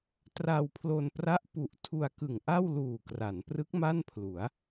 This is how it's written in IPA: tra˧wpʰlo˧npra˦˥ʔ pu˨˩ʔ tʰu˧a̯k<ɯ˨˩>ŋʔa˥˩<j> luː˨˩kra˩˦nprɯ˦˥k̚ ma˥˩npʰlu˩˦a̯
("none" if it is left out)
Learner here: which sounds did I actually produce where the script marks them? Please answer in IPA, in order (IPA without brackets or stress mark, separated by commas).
ɯ˨˩, w